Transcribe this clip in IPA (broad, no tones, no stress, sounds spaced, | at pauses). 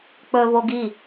k͡p ɵ v o ɡ i